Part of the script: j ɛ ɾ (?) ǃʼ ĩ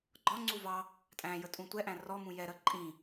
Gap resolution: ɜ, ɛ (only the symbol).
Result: ɜ